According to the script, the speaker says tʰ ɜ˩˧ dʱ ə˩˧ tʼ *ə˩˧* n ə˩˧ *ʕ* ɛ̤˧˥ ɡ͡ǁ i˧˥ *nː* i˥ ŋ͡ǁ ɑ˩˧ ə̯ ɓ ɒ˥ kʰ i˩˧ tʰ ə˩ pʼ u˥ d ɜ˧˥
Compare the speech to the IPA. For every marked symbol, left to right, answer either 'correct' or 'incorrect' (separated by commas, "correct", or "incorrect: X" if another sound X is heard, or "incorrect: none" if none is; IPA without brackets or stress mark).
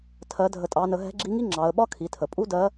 incorrect: ɑ˩˧, incorrect: ɦ, incorrect: ŋ